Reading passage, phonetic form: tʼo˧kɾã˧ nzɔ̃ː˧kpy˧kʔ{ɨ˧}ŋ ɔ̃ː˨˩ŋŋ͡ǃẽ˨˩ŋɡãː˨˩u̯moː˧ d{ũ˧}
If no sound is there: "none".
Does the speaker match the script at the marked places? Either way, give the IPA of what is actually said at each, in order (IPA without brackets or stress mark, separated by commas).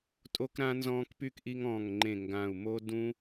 i˧, ũ˧